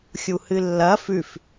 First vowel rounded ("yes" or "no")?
yes